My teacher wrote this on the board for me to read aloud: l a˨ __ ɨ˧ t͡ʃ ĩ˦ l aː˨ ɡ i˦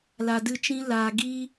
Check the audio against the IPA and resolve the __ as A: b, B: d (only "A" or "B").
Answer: B